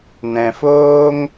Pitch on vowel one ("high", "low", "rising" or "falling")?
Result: low